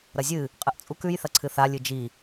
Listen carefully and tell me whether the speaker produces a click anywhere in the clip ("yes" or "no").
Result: yes